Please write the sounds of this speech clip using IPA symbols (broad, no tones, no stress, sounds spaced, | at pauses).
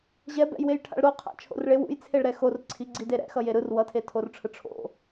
ʑ ɛ b ɛ̰ j w e j ʈʰ a̰ ɭ ɾ o qʰ a̰ t͡ʃʰ o̰ r ɭ e w ṵ j t͡sʰ e ɭ ɾ ɛ x o r ǀʰ i ɡ͡ǀ i d e ɾ ɛ̰ x ʌ j e ɾ ɯ r w ʌ tʰ e tʰ o r ʈ͡ʂʰ ɯ ʈ͡ʂʰ o̰